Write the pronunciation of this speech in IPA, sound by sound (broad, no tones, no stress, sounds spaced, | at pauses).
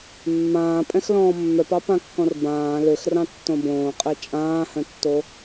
mː ãː pʼ ɛ̃ x l ɔ̃ː mː œ p ɑ p ã kː ɔ̃ r b ãː l ø x r ɑ̃ tː õ b õː qʼ ɛ t͡ʃʼ ãː h œ̃ tː o